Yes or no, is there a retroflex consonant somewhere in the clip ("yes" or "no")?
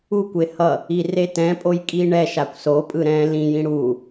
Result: yes